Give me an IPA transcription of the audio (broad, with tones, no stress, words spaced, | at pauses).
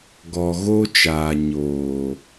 ɡɔ˨ɣo˦t͡ʃaː˨ ɲoː˨